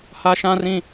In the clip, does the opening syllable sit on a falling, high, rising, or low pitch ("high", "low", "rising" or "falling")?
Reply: high